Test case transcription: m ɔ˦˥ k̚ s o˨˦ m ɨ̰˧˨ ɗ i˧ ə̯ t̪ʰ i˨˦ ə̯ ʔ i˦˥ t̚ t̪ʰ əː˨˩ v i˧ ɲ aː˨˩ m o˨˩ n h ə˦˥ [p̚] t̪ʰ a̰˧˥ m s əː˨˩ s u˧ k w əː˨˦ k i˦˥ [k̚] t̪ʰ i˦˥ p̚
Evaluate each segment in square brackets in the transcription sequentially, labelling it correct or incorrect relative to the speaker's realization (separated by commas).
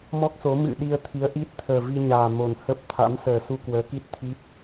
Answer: correct, incorrect